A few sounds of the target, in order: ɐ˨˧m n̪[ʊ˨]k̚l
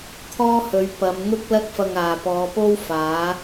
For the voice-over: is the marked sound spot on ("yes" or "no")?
no